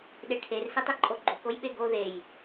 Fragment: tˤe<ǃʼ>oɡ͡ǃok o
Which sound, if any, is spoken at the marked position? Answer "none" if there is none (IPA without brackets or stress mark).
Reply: ǃʼ